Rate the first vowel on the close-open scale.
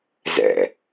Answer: mid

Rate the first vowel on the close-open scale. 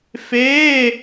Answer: mid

